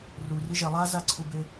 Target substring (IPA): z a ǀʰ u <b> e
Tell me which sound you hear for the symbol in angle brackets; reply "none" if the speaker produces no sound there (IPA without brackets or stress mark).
b